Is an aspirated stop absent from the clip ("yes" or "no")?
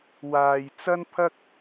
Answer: no